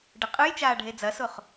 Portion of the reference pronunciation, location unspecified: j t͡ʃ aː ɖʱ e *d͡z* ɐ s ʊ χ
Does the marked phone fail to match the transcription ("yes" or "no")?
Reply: no